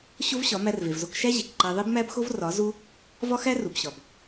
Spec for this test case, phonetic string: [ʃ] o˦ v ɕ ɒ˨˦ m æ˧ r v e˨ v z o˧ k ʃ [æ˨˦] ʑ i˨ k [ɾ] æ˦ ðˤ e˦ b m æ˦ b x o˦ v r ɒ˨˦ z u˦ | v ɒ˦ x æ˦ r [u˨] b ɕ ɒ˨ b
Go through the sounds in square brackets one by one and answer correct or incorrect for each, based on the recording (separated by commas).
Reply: incorrect, incorrect, incorrect, correct